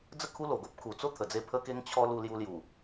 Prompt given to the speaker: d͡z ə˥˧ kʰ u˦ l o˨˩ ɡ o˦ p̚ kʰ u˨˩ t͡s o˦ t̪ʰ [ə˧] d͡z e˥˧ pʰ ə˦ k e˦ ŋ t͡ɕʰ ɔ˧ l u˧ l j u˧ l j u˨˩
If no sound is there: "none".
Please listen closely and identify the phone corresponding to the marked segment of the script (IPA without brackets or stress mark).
ə˨˩